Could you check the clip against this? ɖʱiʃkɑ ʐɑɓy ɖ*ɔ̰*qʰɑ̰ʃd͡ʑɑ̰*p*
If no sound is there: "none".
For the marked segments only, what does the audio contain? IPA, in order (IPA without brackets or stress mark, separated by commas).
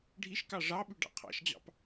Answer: ɑ̰, p